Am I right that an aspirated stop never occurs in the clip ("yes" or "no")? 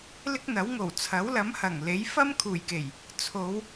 no